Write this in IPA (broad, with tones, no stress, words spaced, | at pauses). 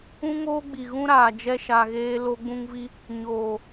ũ˦ŋoː˦ɡ͡bi˨ɣũ˦ ɾaː˨d͡ʒɛ˧ʃa˨ɣeː˧ lo˧ɡ͡bũ˧ŋvi˧ | ɲoː˨